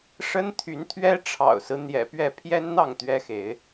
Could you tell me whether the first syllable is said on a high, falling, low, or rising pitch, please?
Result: high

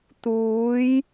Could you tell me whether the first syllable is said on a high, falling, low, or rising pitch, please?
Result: rising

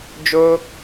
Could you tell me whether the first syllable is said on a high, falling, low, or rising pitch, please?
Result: high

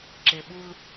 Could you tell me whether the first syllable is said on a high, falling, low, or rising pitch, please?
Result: low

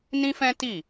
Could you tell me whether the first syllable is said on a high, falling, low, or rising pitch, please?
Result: high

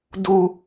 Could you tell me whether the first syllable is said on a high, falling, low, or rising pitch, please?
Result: low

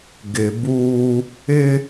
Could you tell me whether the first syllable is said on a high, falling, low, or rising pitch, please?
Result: low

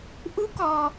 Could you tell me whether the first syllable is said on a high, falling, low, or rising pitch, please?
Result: rising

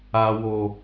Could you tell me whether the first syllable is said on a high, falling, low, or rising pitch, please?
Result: low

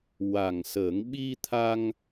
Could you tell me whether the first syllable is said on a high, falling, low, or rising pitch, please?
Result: low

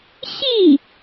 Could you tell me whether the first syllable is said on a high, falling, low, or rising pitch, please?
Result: falling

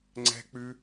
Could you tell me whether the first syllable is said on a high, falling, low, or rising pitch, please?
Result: high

